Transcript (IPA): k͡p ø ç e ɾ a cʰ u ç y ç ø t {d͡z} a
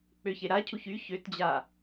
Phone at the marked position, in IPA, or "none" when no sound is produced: d͡ʑ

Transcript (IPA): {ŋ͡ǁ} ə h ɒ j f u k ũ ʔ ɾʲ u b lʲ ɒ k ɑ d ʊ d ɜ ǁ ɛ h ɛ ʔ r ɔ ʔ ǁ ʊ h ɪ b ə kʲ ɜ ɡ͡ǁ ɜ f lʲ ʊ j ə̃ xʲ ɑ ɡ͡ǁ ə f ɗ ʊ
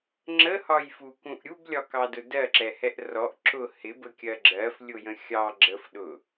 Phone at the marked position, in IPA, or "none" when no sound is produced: ŋ͡ǁ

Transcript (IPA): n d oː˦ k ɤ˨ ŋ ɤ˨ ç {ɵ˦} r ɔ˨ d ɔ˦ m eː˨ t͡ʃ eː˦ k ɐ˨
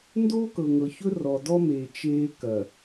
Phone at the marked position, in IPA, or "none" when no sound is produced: ɵ˦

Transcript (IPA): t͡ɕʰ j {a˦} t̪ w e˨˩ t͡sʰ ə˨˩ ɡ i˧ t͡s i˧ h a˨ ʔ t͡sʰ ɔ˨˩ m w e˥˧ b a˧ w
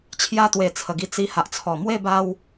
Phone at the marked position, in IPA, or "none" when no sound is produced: a˦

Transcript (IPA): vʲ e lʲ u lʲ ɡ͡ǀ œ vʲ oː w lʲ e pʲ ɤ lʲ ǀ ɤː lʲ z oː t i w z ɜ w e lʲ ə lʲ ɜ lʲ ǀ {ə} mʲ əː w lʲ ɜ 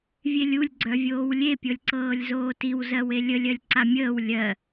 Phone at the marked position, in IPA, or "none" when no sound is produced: a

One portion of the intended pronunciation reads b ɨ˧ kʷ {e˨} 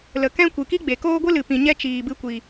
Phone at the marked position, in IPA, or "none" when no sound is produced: i˨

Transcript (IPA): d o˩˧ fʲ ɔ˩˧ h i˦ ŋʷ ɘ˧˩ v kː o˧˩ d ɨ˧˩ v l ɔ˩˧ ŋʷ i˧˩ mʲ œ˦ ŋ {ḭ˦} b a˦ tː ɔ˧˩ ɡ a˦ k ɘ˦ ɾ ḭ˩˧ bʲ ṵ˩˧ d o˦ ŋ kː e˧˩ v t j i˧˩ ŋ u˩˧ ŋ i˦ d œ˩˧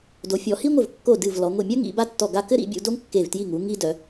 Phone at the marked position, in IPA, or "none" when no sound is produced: ḭ˩˧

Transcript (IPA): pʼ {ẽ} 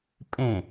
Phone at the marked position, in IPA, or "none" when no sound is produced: ẽ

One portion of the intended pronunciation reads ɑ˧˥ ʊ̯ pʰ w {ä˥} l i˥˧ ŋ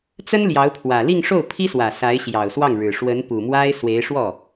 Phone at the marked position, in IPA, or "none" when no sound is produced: ä˨˩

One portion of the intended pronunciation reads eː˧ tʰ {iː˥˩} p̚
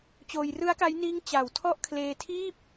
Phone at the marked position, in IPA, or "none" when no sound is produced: iː˥˩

